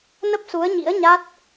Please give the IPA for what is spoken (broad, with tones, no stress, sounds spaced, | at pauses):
n ə˦˥ p̚ s u˨˦ ə̯ ɲ ḭ˧˥ ə̯ ɲ a˦˥ t̚